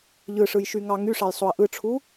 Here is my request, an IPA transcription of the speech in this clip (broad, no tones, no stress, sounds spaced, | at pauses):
ʎ ɯ ʂ ɯ j ʃ y ŋ ɑ ŋ y ʂ ɑ j sˤ o ɐ̯ ʔ ɯ ʈ͡ʂʰ u